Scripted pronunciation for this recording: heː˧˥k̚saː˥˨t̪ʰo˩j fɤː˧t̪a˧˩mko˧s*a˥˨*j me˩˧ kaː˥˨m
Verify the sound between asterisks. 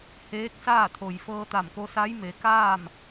incorrect: a˧˥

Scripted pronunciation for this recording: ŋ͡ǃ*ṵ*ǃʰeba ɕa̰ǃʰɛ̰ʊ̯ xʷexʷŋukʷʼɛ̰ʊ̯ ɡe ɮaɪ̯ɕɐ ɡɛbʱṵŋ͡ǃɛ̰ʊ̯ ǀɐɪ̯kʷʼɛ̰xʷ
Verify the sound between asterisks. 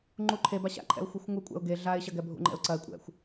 incorrect: u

